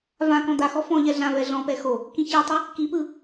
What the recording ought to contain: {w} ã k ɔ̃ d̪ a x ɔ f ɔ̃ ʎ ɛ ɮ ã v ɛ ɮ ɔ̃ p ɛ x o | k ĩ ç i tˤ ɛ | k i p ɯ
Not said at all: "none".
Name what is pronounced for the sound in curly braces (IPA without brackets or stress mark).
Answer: v